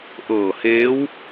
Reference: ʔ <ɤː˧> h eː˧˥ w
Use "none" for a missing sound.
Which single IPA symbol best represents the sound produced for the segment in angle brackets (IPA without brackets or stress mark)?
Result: ɤː˧˩